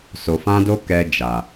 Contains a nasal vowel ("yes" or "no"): yes